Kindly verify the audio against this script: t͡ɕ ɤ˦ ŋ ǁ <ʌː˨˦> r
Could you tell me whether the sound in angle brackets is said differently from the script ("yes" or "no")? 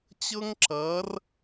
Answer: no